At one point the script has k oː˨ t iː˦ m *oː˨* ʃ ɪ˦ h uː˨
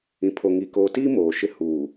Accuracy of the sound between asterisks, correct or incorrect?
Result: correct